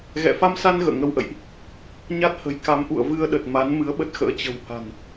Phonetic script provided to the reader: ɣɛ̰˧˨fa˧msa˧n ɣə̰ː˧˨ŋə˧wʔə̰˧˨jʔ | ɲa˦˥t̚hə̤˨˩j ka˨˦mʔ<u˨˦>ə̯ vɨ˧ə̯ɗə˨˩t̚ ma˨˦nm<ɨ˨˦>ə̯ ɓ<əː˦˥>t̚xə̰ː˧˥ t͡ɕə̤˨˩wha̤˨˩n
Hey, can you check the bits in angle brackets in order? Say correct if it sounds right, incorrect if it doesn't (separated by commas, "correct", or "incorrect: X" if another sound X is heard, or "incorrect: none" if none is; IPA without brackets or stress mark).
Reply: incorrect: ṵ˧˨, correct, incorrect: ə˦˥